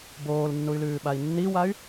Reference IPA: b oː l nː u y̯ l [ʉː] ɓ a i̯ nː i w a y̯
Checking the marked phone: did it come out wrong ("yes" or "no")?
no